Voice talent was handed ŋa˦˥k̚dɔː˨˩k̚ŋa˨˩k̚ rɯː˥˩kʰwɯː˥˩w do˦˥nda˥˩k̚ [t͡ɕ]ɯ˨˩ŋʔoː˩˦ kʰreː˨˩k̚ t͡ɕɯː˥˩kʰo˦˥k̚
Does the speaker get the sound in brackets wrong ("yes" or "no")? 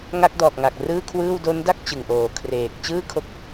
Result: no